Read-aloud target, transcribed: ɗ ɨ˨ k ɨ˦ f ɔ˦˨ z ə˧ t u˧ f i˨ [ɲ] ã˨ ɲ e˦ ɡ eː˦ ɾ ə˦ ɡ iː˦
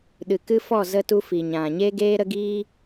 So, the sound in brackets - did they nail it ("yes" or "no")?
yes